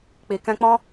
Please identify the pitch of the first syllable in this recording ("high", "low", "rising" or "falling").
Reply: low